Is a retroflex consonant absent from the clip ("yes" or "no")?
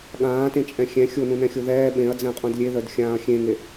yes